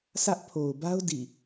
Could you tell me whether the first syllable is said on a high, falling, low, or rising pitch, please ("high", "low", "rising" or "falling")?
high